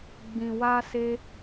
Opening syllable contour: low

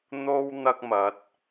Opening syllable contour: high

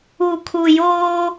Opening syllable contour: low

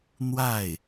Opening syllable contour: falling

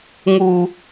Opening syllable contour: low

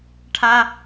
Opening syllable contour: high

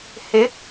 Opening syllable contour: rising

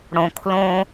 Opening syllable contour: low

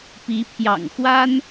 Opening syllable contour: rising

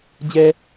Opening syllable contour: high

